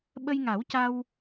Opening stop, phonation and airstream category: implosive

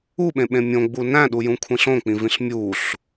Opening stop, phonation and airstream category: implosive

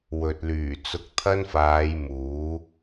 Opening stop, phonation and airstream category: plain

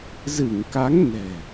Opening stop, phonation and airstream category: plain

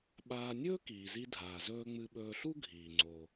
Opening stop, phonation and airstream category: implosive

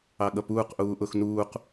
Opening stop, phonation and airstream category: implosive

